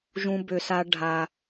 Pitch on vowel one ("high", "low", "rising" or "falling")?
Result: high